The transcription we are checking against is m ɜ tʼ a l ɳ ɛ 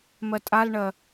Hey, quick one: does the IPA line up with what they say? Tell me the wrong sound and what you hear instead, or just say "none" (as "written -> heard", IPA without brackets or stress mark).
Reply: ɛ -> ɜ